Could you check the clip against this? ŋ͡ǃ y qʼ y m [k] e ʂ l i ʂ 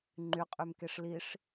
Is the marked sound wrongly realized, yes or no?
no